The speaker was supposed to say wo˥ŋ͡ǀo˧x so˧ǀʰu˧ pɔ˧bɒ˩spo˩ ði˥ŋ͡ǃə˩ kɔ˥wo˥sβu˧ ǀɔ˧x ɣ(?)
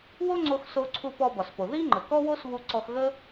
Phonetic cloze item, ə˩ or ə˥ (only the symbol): ə˥